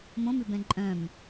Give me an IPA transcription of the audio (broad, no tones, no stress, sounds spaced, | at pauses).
m õ m ʉ b ɛ̃ ǃʼ œ̃ m